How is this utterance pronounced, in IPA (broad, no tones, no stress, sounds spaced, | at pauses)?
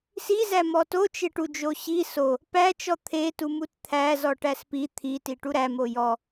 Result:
s i z æ m ɔ t o t͡ʃ e ʈ u d͡ʒ o ɕ i s o | p æ t͡ʃ ɔ t̪ʰ e t u m u t t̪ʰ æ z ɔ ʈ æ s p i t̪ʰ i t i ʈ u ɾ æ m o j ɔ